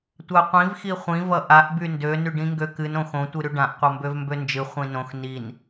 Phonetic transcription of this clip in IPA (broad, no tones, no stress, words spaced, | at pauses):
tʷaqʷĩv xiχʷĩ vʌʔaʔ byndø nyɖĩŋɡøkɨn õxõ tʷɨɾyɖãʔ qʷʌmbøvmbønd͡ʒɨ χʷĩnõx nin